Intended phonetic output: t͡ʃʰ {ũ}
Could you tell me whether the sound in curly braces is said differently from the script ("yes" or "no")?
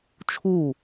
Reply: yes